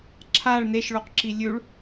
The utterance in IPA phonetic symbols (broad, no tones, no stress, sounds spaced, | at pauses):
ǁʰ a ɭ n e ʃ ɭ o q ǁ i lʲ ʉ ɭ